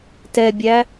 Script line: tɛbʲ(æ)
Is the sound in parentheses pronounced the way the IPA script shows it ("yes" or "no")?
yes